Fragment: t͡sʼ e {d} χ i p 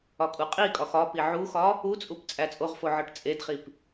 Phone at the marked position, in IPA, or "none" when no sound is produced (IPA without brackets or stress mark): d